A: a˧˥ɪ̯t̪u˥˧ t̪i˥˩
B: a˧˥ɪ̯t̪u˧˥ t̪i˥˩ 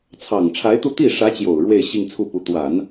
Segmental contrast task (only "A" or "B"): A